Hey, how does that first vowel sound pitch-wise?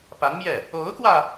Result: rising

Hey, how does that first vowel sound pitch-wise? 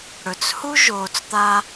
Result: low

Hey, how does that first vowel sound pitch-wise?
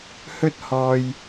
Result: high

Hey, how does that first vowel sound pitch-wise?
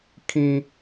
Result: high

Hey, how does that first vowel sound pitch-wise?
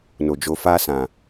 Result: low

